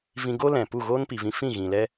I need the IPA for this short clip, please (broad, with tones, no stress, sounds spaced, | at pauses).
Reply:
v ĩ˧ ɡ o˦ l ɛ̃˨ p u˦˨ ɣ oː˦ n p i˨ v ĩ˧ f ĩ˦˨ ɣ ĩ˨ l ɛ˦